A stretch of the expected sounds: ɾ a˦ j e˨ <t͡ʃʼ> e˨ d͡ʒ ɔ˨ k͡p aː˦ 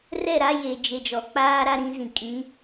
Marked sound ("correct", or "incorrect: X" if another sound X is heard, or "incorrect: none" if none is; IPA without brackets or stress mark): incorrect: d͡ʒ